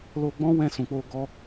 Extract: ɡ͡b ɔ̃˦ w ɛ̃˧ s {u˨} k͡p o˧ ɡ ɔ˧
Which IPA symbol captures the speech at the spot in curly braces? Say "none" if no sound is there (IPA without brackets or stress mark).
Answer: ũ˨